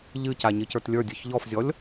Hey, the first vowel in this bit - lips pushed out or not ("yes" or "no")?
no